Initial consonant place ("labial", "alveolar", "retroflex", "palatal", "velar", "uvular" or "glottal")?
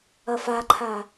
labial